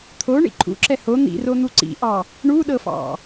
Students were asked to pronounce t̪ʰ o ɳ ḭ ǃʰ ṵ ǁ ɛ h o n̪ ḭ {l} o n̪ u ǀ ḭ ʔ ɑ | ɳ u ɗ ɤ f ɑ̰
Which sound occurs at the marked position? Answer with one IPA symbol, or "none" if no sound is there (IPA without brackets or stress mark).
r